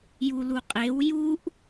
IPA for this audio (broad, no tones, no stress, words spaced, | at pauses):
juluqʼew juʔ